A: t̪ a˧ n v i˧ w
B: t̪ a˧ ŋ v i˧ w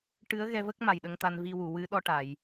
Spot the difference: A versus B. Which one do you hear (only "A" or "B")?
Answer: A